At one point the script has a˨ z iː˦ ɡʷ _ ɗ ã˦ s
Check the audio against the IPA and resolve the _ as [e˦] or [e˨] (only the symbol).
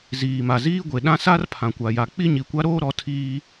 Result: e˨